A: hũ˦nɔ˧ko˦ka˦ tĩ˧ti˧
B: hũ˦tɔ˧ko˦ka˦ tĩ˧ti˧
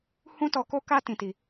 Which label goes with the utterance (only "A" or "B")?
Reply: B